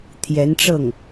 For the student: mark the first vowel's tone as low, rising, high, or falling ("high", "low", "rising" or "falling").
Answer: rising